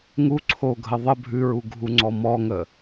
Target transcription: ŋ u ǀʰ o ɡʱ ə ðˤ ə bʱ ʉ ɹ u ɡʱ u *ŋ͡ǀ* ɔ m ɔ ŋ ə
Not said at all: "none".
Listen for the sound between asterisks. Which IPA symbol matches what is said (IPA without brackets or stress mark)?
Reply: ŋ͡ǀ